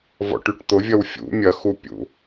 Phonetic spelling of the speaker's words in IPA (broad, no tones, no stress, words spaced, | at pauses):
vɔ̰ʈyʈt̪ʊvʲɐw fʲṵ mʲɐxupʲṵ